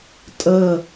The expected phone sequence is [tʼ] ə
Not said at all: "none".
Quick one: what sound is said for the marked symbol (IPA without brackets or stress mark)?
tʼ